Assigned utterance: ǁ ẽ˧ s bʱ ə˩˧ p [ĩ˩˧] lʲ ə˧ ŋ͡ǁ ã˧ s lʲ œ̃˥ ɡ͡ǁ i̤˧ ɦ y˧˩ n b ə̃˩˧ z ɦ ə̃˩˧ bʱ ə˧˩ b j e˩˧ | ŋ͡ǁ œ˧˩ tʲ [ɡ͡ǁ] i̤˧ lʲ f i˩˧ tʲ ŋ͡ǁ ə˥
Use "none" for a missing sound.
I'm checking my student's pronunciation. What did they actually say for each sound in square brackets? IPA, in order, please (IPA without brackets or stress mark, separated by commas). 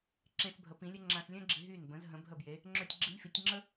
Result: ĩ˩˧, ɡ͡ǁ